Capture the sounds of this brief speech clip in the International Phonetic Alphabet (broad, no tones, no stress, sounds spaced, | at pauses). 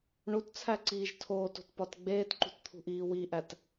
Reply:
ɳ u t t͡sʰ æ ǀ iː ʒ tʰ oː t o̤ t p ɒ t ɡ͡b eː t ǃ ṳ t t̪ʰ ṳ ʔ iː w i ʔ æ t